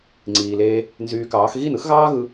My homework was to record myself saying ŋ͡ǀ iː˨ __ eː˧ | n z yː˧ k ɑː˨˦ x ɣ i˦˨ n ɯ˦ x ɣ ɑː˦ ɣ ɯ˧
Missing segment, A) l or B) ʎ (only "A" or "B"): A